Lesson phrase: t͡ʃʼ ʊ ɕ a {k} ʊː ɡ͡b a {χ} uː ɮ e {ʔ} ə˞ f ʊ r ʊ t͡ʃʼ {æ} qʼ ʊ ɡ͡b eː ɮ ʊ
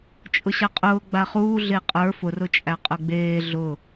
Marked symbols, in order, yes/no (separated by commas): no, yes, no, yes